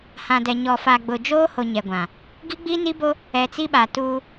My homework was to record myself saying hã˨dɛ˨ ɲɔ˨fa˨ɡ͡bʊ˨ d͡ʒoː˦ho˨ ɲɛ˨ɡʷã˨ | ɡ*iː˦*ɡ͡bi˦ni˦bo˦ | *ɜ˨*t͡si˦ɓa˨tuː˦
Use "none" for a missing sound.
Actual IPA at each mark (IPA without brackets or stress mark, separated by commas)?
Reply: i˦, ɛ˨